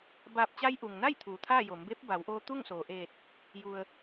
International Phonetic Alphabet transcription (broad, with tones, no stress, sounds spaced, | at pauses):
b aː˧˩ p̚ t͡ɕ a˧ j ʔ u˩ ŋ n a˥˨ j t̪ʰ uː˩ t̪ʰ aː˥˨ j o˩˧ m b eː˧˥ p̚ b a˩˧ w ʔ oː˧ t̪ u˥˨ ŋ s oː˩ ʔ eː˧˩ t̚ | j u˩ ə̯